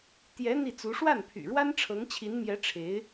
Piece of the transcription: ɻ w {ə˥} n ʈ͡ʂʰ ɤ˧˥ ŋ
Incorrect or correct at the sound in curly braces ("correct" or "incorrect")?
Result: incorrect